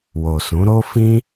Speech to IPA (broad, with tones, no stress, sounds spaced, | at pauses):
w o˨ s ũ˨˦ ɾ o˦ f ĩ˦